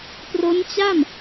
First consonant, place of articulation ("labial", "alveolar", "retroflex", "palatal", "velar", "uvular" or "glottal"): labial